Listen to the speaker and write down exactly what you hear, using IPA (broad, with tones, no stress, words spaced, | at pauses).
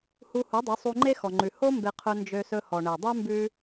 hu˧hu˨˦dˤø˨˦ sˤu˧ŋ͡ǃe˦ xɔ˨ŋ͡ǃʉ˨ ho˦ mbe˧qʰɵ˧ nd͡ʒø˧sɵ˧ hɔ˨ɳe˨dˤʉ˦ mbʉ˧